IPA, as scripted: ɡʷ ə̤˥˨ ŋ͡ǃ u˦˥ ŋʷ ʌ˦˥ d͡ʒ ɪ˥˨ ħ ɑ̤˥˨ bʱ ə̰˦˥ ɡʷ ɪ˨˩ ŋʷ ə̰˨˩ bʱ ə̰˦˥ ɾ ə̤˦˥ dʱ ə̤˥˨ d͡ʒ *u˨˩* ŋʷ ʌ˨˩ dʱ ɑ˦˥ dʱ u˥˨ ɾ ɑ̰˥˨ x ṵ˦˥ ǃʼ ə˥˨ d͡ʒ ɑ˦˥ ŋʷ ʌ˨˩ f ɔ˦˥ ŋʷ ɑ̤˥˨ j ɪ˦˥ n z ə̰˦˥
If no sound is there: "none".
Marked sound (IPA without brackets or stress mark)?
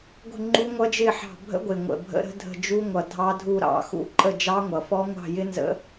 u˦˥